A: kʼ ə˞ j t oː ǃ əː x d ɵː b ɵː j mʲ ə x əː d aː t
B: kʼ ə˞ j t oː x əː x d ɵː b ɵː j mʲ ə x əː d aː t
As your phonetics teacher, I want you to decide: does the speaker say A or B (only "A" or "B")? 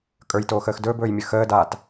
B